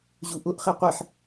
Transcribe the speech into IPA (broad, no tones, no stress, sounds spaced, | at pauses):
ʑ u ʔ ʊ ʔ χ e qʷ i ħ